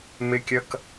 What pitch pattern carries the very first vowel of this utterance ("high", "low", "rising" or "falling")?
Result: high